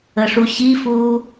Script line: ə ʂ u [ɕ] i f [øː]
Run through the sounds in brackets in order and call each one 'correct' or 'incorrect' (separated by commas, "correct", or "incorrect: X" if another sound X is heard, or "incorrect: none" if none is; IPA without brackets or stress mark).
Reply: correct, incorrect: uː